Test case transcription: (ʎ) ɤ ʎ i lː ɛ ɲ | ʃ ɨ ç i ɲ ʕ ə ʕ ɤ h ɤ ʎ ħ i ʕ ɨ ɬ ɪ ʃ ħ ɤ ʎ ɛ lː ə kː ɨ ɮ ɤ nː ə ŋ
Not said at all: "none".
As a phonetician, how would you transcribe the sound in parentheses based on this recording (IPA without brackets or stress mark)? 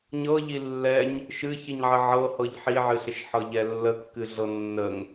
ɲ